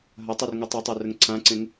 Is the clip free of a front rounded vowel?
yes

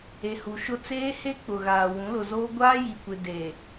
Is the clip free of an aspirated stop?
yes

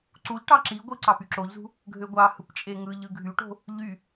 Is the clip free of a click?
no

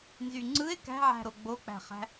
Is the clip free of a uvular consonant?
no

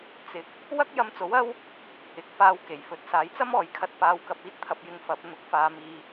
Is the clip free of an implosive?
yes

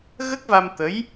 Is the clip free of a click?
yes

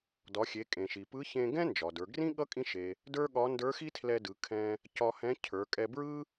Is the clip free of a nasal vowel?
no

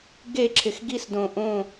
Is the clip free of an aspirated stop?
no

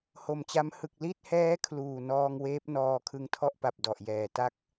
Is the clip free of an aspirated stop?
no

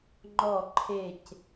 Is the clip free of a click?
no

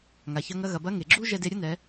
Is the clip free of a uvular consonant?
yes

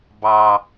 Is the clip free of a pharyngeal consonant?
yes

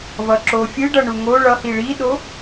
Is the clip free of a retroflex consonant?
no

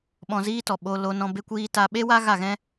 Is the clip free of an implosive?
no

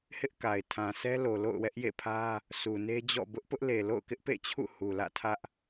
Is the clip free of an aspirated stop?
no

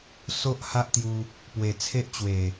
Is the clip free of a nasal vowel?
yes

